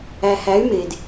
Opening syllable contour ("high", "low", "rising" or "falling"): low